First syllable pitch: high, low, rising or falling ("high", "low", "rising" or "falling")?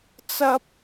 high